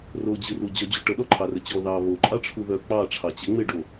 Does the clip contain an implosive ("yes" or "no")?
yes